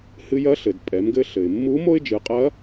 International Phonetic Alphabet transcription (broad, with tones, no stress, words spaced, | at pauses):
hɨ˧jɐ˧˥ɬɘ˩d pʼɛ˩˧mɡɘ˧ɬɘ˩ɪ̯mːu˧˥ mo˥ɪ̯ d͡ʒɨ˩˧qʼɐ˧˥